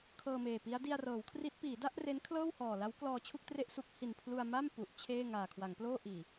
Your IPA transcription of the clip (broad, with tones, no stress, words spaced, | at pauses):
kʰɤː˧meː˨˩pi˦˥a̯ di˧a̯rɤː˩˦wkʰri˦˥t̚ piː˩˦da˥˩ʔ re˦˥nkʰlɤː˥˩whɔː˨˩la˦˥w klɔː˧t͡ɕʰu˥˩k̚tre˥˩ʔ su˦˥k̚ hi˨˩npʰlu˧a̯ ma˥˩m pu˨˩ʔt͡ɕʰeː˥˩ ŋaː˨˩kʰwa˩˦ŋploː˥˩ʔiː˨˩